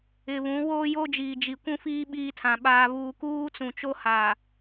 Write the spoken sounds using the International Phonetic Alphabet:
ɪ˨ β ũ˨˦ w oː˦ j o˦ d͡ʒ iː˨ d͡ʒ i˨ kʷ ũ˦ f iː˦ ɓ iː˦ tʰ ã˨ ɓ aː˦ β uː˦ k uː˦ t͡s ũ˨ t͡ʃ o˦ h a˨

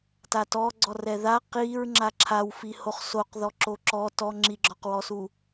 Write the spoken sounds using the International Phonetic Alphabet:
t a t ɔ ɡ͡ǀ ɔ r ɛ ð a q i ɹ ŋ͡ǁ a ǁʰ a w f i h o χ s o q ð ɔ ǁ o ǁ ɔ t ɔ ŋ͡ǁ i ɡ͡ǁ ɔ q w ɔ s u

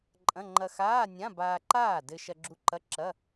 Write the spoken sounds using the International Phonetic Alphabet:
ǃʼ ɐ̃˧˥˧ ŋ͡ǃ ɐ˧ x aː˧˥˧ nʲ ã˧˥˧ b aː˧ ǃ aː˥˩ d ɘ˧ ʃ ɐ˧ ɡ͡ǁ u˧ ǃ ɐ˧˥˧ ǁ ɐ˧˥˧

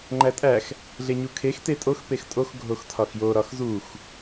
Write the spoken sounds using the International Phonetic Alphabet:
ŋ͡ǃ æ tʼ æ x | ɮ e ɲ u kʰ e x t e tʼ o x p e x tʼ o x ɡʱ o x tʰ ɒ x j o ɾ ɒ x z u x

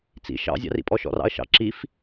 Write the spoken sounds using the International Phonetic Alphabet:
t͡s ḭ ʃ ɑ̰ zʲ ɑ̰ r ḭ pʼ ɔ ʃ ɔ̰ r ɑ̰ ɐ̯ ʃ ɑ̰ ǁ i f

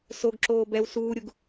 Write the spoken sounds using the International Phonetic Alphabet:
s o ɡ ǁ oː b ɛ w s uː ɾʲ u ɡ

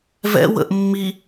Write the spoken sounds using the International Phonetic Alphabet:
v ɛ̰ w ə̰ ʔ mː i

